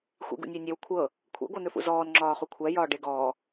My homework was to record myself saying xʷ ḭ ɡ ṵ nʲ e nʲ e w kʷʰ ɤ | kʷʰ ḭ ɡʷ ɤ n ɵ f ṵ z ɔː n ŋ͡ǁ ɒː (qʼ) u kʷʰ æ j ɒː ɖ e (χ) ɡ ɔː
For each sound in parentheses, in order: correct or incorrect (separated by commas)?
incorrect, incorrect